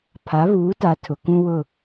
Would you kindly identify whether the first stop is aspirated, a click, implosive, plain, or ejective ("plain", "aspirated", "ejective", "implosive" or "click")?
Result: aspirated